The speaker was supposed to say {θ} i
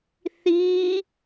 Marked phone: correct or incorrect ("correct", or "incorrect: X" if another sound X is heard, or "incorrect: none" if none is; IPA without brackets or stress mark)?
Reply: correct